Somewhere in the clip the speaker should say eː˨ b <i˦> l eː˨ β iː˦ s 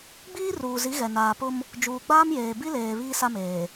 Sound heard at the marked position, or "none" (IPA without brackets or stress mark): i˦